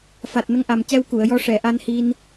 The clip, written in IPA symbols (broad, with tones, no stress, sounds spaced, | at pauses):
f a˨˩ t̚ n ə˧ ŋ ʔ a˨˩ m c ɛ˧ w k u˨˩˨ ə̯ j ɔ˧ ʂ ɛ˨˩˨ ʔ a˧ n h i˧ n